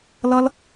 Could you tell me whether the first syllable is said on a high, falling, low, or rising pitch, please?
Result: high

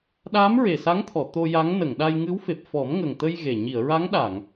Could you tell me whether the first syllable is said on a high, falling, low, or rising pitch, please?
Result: rising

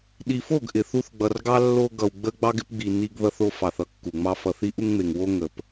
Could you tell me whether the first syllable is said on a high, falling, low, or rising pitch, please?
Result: low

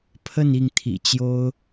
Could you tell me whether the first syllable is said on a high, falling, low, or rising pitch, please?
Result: falling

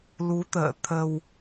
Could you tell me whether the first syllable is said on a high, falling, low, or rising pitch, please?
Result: rising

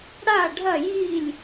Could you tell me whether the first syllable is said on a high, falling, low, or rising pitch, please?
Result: falling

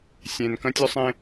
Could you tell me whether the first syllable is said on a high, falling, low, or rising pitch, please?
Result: low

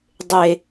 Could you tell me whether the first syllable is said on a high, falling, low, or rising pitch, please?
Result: low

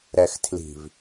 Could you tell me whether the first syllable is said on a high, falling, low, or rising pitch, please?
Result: low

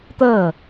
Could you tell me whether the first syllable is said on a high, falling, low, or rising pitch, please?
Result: falling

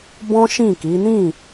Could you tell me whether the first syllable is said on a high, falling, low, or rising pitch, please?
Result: high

